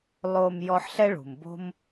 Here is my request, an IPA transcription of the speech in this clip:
lˠ o˨ m j ɔ˦ ħ ɬ ɛ˥ ɭ ṳ˩ m b o̤˥ m

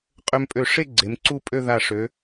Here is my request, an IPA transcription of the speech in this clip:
qʼ ø˧ m pʼ ø˧˩ ʂ e˥˧ ɡ͡ǀ e˩˧ m ǀ u˥˧ pʼ ø˥˧ ð a˧˩ ʂ ø˩˧

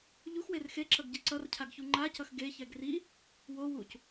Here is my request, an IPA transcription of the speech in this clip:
ʎ u x w e r x e ǁ ʌ ɡ ɟ i ǀ ʌ r cʰ a ɡ ç u ŋ͡ǃ a c ʌ x ɡ e ç ɛ ɡ r i | w o w u c

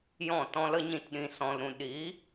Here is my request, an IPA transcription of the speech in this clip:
j ɔ̃˦˨ t ɔ̃˧ l ə˦ ɲ ĩ˦˨ t ɗ ĩ˧ s ɔ̃˨ l ɾ ũ˨ ɗ iː˨˦

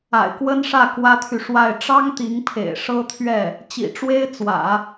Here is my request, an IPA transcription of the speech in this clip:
a̰˨˩ ɪ̯ k w ə˥ n ʂ ä˥˩ k w ä˥ t̪ʰ y˨ ʂ w a˥˩ ɪ̯ ʈ͡ʂ ɑ˥ ŋ t̪ i˧˥ ŋ pʰ ḛ˨˩ ɪ̯ ʂ ɤ˥ t̪ʰ ɥ ɛ˥˩ | t͡ɕ ḭ˨˩ ʈ͡ʂ w e˥ ɪ̯ t͡s w ä̰˨˩˦

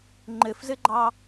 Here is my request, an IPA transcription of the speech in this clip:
ŋ͡ǃ ɘ f z ɘ ɡ͡ǃ ɑ

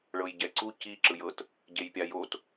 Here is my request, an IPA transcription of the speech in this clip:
ɭ ɤ j ɟ ɛ ǀ u c i ǁ ɯ j ɤ t | ɟ e j pʲ a j o t

